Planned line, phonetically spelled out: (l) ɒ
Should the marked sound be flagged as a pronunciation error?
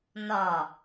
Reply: yes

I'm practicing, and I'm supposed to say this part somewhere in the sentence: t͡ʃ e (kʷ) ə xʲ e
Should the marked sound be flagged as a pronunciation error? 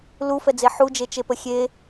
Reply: yes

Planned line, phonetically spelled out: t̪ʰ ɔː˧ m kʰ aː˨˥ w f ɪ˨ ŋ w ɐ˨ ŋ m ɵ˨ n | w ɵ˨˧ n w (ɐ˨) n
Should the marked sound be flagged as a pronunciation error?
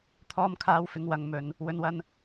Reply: yes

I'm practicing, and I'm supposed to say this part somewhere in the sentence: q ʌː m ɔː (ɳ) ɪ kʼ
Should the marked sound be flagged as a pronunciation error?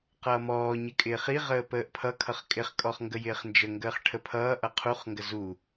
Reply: yes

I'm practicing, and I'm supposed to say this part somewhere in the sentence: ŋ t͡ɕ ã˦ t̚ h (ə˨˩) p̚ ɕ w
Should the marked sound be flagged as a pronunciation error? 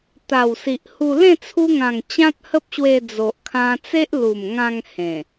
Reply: yes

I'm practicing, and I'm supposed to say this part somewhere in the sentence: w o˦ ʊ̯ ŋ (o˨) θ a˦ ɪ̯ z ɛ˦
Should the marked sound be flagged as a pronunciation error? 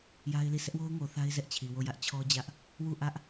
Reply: no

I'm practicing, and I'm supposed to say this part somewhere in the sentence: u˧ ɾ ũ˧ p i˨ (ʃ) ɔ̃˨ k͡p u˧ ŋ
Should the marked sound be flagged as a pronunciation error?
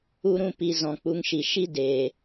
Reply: yes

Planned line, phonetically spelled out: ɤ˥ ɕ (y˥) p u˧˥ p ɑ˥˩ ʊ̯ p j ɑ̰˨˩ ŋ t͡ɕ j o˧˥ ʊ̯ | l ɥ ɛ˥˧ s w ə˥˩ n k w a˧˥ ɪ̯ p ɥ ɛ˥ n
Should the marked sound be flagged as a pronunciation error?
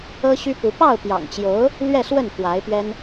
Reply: no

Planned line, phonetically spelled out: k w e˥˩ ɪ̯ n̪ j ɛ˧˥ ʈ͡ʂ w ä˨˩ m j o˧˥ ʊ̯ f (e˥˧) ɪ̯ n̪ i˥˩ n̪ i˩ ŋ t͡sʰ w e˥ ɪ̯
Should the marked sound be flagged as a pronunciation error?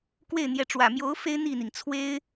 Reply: yes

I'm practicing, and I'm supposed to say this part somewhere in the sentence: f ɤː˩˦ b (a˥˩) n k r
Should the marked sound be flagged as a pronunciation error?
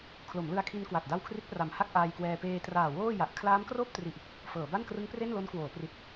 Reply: no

